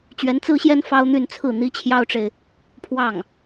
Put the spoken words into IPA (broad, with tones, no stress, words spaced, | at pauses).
t͡ɕɥɛ˧˥nt͡sɹ̩˥ɕjɛ˥n fɑ˥ʊ̯n̪y˥˧nt͡sʰɹ̩˥˩ n̪i˥t͡ɕʰjɑ˥ʊ̯ʈ͡ʂe˨ɪ̯ | pʰwɑ˥˩ŋ